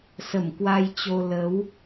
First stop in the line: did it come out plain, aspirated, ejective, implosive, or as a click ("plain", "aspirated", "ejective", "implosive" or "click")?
plain